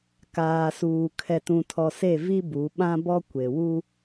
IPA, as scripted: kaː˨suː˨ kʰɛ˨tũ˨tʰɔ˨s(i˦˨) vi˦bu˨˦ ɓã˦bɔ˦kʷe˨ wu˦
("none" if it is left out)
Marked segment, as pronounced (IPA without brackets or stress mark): e˦˨